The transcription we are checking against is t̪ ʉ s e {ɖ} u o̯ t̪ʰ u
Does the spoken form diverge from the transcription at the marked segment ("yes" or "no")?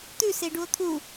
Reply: no